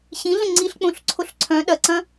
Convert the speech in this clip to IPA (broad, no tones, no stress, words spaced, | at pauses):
ɕĩɮə̃ ŋ͡ǀiɬk͡põɬǀʰoɬ ǀʰœ̃ ɗɐǀɐ̃